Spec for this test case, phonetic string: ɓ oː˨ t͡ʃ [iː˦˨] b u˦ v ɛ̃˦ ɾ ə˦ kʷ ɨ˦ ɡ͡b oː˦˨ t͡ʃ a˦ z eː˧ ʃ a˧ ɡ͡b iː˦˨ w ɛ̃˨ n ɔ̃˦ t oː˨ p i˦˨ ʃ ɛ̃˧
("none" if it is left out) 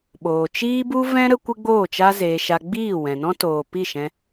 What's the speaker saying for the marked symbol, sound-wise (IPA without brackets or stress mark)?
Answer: iː˦